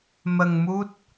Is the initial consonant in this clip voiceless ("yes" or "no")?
no